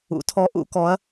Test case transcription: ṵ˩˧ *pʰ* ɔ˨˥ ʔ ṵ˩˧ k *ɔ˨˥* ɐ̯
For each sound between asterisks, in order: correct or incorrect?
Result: incorrect: tʰ, correct

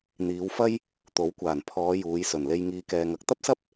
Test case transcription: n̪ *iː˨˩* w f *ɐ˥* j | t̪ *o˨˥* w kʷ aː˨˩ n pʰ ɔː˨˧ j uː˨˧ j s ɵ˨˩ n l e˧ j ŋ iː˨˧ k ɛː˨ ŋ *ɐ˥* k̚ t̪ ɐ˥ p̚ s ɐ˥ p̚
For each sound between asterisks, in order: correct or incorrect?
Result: incorrect: iː˨˧, correct, correct, incorrect: ɐ˨

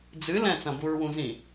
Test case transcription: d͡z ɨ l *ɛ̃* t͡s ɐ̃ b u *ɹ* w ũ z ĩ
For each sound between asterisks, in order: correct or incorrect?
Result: correct, correct

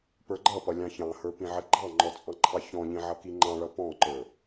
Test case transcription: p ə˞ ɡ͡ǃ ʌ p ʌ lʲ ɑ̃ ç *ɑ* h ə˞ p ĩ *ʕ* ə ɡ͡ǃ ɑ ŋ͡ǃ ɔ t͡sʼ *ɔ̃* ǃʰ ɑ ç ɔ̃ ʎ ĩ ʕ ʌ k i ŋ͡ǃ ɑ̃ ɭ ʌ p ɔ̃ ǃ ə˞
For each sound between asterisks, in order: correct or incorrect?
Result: incorrect: ɑ̃, correct, incorrect: ɑ̃

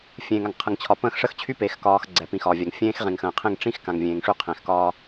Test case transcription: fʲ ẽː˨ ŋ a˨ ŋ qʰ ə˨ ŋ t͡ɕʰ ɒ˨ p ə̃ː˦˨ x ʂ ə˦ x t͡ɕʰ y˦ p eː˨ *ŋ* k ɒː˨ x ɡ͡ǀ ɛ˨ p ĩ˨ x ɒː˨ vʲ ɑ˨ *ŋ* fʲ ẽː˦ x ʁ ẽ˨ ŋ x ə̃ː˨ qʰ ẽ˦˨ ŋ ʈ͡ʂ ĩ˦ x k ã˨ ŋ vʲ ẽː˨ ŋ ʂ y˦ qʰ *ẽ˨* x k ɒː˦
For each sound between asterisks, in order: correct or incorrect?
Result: incorrect: x, correct, correct

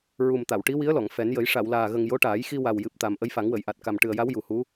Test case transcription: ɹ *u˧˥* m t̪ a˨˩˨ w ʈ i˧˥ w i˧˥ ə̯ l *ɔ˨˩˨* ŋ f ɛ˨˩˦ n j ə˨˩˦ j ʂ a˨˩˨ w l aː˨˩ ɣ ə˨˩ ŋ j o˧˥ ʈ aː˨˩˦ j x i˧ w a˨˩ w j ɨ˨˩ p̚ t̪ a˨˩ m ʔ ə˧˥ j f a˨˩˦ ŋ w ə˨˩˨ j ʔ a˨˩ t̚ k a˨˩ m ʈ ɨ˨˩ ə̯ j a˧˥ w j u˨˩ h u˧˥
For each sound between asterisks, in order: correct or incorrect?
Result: incorrect: u˨˩, correct

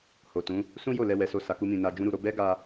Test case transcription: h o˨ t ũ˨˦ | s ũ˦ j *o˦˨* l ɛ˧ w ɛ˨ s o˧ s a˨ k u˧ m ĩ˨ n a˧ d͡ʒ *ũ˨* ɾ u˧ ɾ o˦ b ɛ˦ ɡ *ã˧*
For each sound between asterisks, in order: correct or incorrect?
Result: correct, incorrect: ũ˦, incorrect: a˧

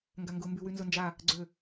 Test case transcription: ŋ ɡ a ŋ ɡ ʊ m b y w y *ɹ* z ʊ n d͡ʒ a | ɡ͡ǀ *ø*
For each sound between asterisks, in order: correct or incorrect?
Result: incorrect: n, correct

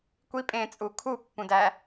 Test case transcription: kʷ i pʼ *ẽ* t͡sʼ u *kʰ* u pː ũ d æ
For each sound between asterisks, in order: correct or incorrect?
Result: correct, correct

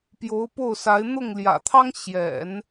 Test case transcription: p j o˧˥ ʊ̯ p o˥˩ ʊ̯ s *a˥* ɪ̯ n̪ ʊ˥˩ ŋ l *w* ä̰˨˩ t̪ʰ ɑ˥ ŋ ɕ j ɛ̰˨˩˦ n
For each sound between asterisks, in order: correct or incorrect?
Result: incorrect: a˧˥, incorrect: j

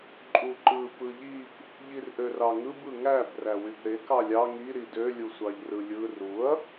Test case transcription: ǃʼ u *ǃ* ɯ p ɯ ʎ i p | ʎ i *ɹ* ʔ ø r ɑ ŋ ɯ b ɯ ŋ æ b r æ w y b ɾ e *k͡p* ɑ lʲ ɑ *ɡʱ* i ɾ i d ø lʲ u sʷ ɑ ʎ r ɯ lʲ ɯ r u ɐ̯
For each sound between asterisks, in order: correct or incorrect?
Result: correct, incorrect: r, incorrect: k, incorrect: ŋ

